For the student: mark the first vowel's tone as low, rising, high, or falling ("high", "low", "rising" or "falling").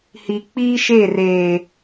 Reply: low